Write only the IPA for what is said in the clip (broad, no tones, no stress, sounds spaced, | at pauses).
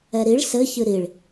ɛ ɾ i ɭ s ɘ ç ɨ ɾ i ɭ